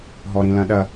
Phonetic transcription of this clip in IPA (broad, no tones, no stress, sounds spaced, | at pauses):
ɦ ɔ ɾ ĩ l ɐ̃ ɗ ɐ